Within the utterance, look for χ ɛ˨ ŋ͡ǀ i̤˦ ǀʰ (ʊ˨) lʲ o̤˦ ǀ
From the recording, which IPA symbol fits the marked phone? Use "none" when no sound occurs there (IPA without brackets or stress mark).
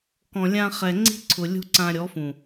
ʊ˨